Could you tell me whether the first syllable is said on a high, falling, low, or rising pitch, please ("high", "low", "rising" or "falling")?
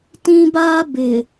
high